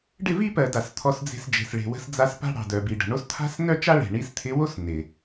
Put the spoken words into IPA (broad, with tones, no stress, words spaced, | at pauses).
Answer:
ɖɪ˦˨vi˦pɜ˨ da˨st̪ʰɔ˧sd͡ze̤˧sd͡ʒe̤˨s ɭe̤˨wə̤˧sd͡za˧s pa̤˦ɽɑ̤˨dœ˨bi˨ ɖə̤˨ɳo˦s t̪ʰa̤˦snœ˦t͡ʃa˦ɭe̤˨ ɳi˧st̪ʰɪ˧wo˦s nɪ˨